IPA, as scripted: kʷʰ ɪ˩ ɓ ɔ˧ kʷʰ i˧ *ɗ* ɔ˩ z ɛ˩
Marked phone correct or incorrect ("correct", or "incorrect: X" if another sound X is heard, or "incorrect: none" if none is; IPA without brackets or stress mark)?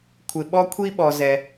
incorrect: ɓ